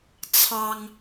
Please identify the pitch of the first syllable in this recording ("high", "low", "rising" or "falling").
high